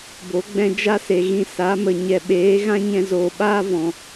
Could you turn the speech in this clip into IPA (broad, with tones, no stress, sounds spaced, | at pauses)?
b o˨˦ ɡ͡b ɛ̃˧ d͡ʒ a˦ s e˨ ɣ ĩ˧ s a˨˦ m ə˨ ɲ ɛ˨ ɓ eː˨˦ ɣ ã˦ ɲ ɛ̃˧ z oː˨ ɓ aː˦ v ɔ̃˨